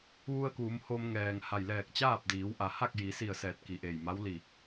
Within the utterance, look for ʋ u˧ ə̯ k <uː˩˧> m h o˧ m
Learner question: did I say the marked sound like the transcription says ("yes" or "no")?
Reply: yes